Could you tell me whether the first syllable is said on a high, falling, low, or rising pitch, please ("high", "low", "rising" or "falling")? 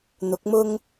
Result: rising